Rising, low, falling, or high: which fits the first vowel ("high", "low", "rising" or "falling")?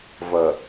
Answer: low